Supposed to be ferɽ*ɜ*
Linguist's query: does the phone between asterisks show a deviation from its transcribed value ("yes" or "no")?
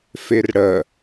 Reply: no